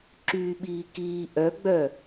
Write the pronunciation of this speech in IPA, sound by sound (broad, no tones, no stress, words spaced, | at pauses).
ǁyːɓiːkiː ʔœɡ͡bœ